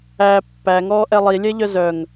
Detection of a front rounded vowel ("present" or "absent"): present